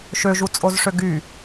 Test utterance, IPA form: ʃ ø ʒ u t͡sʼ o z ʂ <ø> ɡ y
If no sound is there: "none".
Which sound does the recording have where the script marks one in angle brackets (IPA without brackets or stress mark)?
ø